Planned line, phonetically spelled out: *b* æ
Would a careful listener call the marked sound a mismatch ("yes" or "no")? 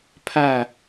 yes